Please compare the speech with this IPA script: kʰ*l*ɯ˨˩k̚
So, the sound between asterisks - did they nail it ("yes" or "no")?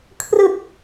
no